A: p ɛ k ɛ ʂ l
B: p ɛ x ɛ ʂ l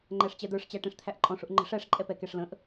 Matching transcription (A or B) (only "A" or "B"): A